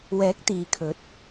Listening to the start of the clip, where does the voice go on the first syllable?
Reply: rising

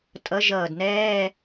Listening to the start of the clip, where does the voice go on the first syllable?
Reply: rising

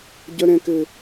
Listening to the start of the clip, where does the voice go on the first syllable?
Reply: high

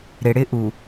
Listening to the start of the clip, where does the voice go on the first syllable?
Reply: low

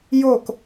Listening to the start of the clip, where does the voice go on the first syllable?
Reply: falling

